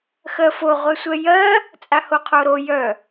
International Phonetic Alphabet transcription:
x ɜ f o ʁʷ ɛ sʷ ɛ j ɜ | t͡sʼ a h o qʰ o ɾ o j œ

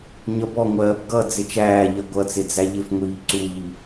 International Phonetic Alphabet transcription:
ɲ ʌ b ɔ ŋʷ ɜː b ɡ ʌ d͡z ɪ t͡ʃ æː ʎ ɜ ɡʷ ʌ t͡s ɪ d͡z æ ʎ ɪ f ŋʷ iː ǀ u ʎ i

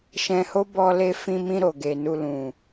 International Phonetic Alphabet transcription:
ʃ ɛ̃˧ h o˦ b ɔ˧ l e˧ f ĩ˧ m ĩ˧ ɾ o˨ ɡ e˨ n u˧ l ũ˨

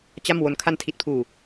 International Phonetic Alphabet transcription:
t͡ɕ a˥˩ m w o˦˥ n kʰ a˧ n tʰ i˨˩ t̚ pʰ uː˨˩

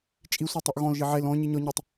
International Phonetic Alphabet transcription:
t͡ʃʼ i sʷ ə˞ tˤ u ʔ ɣ ɔ̃ l ʒ i ʕ e l ɔ̃ ɲ i ɲ ɔ ɲ ɔ tˤ

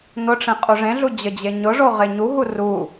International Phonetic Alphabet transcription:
n̪ ʊ ʈ͡ʂ ẽ qʼ u ʐ ẽ ɮ u d͡ʑ ə d͡ʑ e ɲ ʊ ʐ o ʁ e ɲ u ɦ u r u

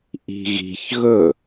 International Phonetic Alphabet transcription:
ʔ i̤ ɣ i̤ ç ɣ ɵ

